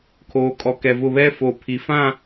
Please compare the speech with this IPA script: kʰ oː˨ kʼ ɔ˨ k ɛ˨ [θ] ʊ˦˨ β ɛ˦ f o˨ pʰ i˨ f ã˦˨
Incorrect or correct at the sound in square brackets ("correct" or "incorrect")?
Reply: incorrect